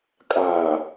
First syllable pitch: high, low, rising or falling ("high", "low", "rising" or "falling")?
low